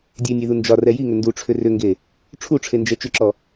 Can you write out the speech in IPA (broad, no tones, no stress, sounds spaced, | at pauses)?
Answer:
dʲ e nʲ e ð u n d͡ʒ ɒ r ɛ j i ŋ ʏ n d u ʈ͡ʂʰ ʏ r ʏ ŋ ɡ e | ʈ͡ʂʰ u ʈ͡ʂʰ e n d͡ʒ ɛ t͡ʃ ʏ ǁ ɔ